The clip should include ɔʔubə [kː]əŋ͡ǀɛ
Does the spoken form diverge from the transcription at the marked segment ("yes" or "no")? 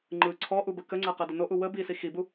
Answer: yes